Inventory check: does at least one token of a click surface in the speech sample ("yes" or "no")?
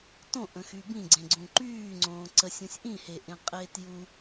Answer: yes